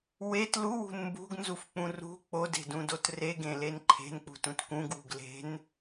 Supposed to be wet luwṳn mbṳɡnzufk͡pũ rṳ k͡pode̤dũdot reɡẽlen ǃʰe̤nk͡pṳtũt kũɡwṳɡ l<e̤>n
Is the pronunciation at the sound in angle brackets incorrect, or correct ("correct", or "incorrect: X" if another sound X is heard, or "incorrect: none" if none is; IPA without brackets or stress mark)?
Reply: correct